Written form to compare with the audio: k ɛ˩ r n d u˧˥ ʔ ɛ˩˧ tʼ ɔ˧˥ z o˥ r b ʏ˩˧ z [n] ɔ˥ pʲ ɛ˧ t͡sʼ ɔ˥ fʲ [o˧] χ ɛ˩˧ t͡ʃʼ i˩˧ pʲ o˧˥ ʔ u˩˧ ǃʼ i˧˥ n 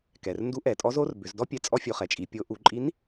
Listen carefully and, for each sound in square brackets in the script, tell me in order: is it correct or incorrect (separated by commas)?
incorrect, correct